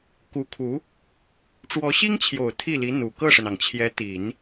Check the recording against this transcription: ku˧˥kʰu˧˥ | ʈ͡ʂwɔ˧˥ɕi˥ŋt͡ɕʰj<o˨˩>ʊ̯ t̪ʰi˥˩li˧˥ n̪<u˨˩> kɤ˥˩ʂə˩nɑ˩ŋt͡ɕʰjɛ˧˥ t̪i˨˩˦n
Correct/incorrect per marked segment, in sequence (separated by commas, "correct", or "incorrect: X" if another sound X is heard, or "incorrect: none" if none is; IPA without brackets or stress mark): correct, correct